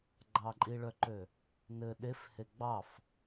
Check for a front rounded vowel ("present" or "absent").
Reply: present